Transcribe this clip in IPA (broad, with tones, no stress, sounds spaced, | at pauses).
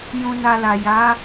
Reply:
j ũ˧ n a˧ l a˨ j a˨˦